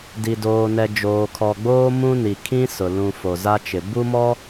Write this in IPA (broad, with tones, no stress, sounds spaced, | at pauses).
d i˨ d oː˨ n ɛ˨ d͡ʒ oː˨ kʰ ɔ˨ ɡ͡b oː˦ m ũ˦ n i˨ kʰ ĩ˦ s ʊ˨ l ũ˨ f o˨ z a˦ t͡ʃ ɪ˨ b u˦ m ɔ˦